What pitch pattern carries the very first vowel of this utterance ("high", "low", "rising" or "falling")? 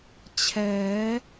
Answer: rising